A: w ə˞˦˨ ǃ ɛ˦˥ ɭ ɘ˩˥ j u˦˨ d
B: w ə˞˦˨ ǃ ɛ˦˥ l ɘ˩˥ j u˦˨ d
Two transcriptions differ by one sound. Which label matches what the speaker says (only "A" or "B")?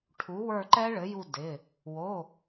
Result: A